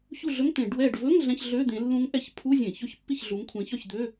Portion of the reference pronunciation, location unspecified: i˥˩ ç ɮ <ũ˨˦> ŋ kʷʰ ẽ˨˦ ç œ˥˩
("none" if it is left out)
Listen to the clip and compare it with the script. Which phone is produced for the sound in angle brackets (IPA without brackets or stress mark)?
u˨˦